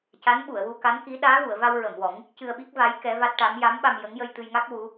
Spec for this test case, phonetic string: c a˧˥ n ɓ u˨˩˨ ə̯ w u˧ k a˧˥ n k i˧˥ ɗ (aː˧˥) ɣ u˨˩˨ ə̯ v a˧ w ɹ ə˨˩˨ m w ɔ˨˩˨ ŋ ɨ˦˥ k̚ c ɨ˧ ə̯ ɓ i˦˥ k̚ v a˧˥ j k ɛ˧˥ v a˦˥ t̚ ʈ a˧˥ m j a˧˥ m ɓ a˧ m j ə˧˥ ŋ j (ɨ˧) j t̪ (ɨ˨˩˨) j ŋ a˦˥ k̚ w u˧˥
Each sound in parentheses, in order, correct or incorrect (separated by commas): correct, incorrect, incorrect